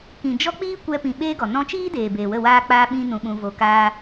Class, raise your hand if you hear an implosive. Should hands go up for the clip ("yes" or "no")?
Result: yes